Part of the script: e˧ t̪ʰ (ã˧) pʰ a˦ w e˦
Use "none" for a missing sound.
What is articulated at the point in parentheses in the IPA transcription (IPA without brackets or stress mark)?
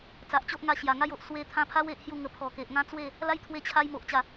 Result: ã˧